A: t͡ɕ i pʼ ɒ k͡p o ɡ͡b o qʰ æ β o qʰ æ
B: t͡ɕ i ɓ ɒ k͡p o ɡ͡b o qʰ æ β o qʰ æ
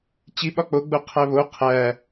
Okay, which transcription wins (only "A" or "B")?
B